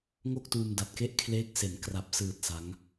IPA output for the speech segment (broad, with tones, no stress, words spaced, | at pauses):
ŋo˥˩k̚tuː˧m da˨˩t̚ke˥˩ʔkʰleː˦˥k̚ se˩˦nkra˨˩p̚ sɯː˨˩t̚ sa˦˥ŋ